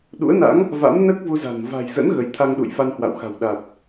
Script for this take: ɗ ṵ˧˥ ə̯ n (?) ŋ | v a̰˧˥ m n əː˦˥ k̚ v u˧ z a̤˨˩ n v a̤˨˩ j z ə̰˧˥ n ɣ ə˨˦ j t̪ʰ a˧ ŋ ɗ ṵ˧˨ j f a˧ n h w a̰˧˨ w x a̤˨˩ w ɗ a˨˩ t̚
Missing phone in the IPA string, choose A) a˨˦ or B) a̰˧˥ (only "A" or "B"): B